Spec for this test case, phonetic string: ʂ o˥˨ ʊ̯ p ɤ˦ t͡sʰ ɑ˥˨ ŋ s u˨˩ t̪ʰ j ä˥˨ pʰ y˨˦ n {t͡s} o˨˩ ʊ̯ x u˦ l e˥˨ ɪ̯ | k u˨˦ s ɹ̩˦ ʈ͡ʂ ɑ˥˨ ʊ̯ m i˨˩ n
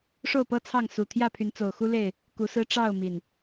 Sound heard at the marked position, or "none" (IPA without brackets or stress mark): t͡s